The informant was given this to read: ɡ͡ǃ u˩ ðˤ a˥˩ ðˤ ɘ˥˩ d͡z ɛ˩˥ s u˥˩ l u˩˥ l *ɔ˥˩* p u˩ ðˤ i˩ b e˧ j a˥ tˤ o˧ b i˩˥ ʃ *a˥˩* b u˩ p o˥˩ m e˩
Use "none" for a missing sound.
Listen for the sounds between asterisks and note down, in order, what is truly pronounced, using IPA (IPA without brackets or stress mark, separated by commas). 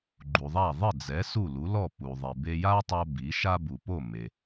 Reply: ɔ˥˩, a˥